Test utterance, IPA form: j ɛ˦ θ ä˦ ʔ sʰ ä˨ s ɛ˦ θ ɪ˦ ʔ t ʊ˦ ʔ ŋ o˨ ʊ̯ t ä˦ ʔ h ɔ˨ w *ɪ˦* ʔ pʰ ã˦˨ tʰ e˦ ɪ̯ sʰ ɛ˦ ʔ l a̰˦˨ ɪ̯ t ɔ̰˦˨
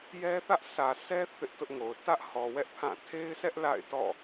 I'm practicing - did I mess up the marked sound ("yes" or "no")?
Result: yes